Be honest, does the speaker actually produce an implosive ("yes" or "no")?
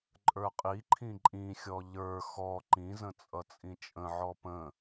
no